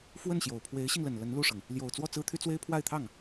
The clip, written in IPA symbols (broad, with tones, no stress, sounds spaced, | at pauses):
f w ə˥˩ n ɕ j o˨˩ ʊ̯ pʰ w e˧˥ ɪ̯ ɕ i˧ ŋ l ə˨˩ n l ə˧˥ n l u˥˩ ʂ ɤ˩ ŋ | l j o˨˩ ʊ̯ t͡s w ɔ˥˩ t͡s ɹ̩˥ t̪ʰ y˥ t͡s w e˥ ɪ̯ pʰ w a˥˧ ɪ̯ t̪ʰ ɑ˥˩ ŋ